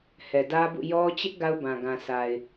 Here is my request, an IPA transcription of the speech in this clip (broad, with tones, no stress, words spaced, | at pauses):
hɛ˨dä˦bṵ˦˨ jɔ˦ t͡ɕɪ˦ʔ ɡa˦ʊ̯bã˨ ɡã˨sa˨ɪ̯